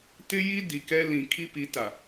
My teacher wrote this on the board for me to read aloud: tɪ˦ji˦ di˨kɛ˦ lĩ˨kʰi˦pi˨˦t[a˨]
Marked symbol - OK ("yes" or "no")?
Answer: yes